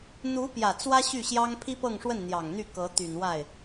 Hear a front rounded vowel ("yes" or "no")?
yes